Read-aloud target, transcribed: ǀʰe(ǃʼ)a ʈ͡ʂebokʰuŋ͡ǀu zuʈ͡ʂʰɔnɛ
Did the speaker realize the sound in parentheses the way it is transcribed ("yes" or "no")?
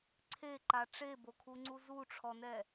no